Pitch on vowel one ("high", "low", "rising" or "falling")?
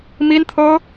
high